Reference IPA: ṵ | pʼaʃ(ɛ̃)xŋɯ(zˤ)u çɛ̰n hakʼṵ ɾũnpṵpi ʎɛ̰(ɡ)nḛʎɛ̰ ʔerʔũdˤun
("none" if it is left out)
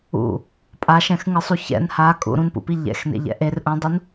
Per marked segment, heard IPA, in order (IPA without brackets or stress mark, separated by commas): ɛ̃, sˤ, x